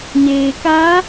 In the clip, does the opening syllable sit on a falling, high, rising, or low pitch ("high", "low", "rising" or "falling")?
low